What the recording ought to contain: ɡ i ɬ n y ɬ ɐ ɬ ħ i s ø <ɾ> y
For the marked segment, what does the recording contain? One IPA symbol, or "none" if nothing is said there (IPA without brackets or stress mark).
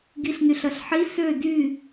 d